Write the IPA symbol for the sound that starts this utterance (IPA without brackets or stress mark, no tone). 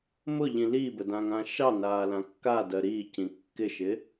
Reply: m